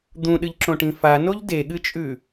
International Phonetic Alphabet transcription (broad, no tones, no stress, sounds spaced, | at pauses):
d̪ ũ ɗ ɨ ʎ ǁ õ ʈ ĩ f a n o ʎ d e ɠ ɨ t͡ʃʼ ʉ